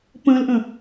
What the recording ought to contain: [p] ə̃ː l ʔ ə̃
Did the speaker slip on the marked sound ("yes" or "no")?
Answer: no